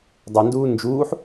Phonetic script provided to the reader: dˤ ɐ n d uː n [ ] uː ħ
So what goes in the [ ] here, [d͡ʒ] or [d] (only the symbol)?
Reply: d͡ʒ